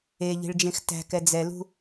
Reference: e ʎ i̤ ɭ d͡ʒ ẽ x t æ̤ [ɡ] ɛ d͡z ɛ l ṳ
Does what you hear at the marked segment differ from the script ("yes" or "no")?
yes